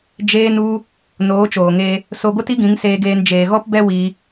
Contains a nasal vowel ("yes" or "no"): yes